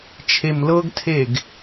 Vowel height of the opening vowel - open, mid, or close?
mid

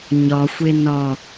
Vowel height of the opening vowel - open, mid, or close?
open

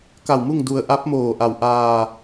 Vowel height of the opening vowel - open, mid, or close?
open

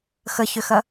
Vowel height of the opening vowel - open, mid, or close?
mid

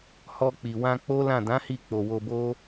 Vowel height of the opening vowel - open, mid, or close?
mid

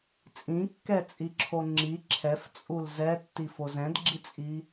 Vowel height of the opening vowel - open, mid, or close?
close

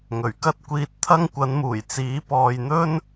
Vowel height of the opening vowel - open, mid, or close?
mid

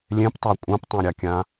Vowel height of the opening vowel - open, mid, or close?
mid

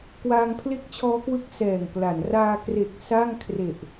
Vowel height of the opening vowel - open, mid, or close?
open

